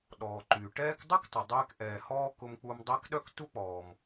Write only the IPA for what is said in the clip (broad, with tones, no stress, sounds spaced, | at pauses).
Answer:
ɗ ɔː˩ ǃ yː˩ ʈ ɛː˦ k dˤ u˥ k tˤ u˩ dˤ ɛː˦ k ʔ ɛː˨ h ɔː˥ k ʊ˦ m k͡p u˦ m dˤ ɛ˥ k ɗ œ˥ k t u˥ k͡p ɔː˨ m